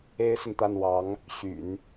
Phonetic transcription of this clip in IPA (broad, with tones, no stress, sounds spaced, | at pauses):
e˥ ɪ̯ s ə˨ n t̪ a˥˩ n w ɑ˧˥ ŋ | ɕ y̰˨˩˦ n